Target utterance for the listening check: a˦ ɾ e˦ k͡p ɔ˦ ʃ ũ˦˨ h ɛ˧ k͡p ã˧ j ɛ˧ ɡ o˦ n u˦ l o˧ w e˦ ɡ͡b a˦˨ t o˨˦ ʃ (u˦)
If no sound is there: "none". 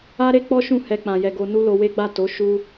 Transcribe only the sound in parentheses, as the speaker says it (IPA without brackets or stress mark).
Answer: u˦